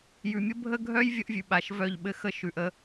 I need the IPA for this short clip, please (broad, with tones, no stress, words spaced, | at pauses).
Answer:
jʉ˨mʲə˦bʱə˦ɡʱœ˦j vʲə˦ʔvʲʉ˨ɓa˨ʃ vœ˦˨ʎɓɘ˦ xə˦ʃʉ˨ʔə˦